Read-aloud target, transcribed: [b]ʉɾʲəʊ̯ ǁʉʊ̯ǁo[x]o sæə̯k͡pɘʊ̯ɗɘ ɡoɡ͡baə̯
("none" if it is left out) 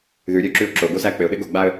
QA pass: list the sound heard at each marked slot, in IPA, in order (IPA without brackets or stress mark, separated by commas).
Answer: ð, ɡ